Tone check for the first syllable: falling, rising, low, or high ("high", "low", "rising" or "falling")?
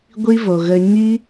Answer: high